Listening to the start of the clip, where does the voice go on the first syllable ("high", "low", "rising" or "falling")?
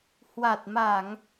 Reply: low